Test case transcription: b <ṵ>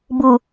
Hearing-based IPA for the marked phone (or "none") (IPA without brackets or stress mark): u